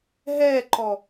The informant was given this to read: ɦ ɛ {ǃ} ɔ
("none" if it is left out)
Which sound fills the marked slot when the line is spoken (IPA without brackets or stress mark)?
ǃ